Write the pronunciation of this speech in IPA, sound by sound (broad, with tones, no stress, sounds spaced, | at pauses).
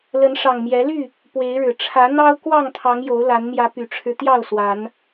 l ə˨˦ n ʂ ɑ˨˩ ŋ m j ɛ˨˦ l y˥˨ | p w e˨˦ ɪ̯ ɻ ɻ̩˨˩ ʈ͡ʂʰ ä˨˦ n̪ ɑ˦ ʊ̯ k w ɑ˥˨ ŋ t̪ʰ ɑ˨˦ ŋ j o˨˦ ʊ̯ l a˨˦ n m j ä˨˦ p y˨˩ ʈ͡ʂʰ ɻ̩˦ t̪ j ɑ˥˨ ʊ̯ s w a˨˦ n